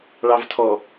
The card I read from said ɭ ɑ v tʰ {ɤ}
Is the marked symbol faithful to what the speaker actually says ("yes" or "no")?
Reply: no